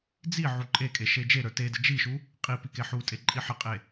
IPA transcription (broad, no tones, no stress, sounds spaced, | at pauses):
d͡z i ʕ u ǃʼ e kʼ e ʃ e d͡ʒ e ɾ ə˞ t e d ə d͡ʒ i ʃ u | qʼ i p i k e ħ u tʼ e ǃʼ i ħ ə qʼ e